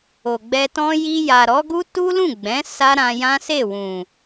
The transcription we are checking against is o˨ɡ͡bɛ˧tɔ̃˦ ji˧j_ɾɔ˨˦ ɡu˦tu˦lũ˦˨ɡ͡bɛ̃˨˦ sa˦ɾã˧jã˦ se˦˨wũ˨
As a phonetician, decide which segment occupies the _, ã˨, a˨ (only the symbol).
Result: a˨